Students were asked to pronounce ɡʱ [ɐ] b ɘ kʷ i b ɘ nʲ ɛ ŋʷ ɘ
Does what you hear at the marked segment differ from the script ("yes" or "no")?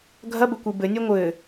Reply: no